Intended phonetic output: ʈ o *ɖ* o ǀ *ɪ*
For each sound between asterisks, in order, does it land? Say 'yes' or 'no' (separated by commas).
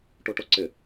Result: no, yes